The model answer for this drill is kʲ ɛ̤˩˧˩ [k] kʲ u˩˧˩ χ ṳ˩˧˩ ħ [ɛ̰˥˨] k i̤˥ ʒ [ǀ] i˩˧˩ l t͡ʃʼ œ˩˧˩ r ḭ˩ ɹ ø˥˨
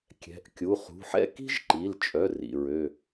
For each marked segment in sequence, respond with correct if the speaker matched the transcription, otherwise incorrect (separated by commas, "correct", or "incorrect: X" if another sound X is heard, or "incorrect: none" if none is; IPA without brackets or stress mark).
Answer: incorrect: ʔ, correct, incorrect: ǃ